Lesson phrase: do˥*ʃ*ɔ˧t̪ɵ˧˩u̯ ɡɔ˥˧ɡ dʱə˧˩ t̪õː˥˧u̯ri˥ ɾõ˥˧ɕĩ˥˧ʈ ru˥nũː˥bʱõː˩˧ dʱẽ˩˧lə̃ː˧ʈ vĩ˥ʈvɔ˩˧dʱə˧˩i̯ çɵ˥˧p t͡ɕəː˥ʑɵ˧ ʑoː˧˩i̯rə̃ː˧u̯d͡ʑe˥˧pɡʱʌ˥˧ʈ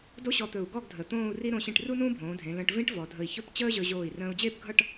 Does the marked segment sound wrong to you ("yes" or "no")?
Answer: yes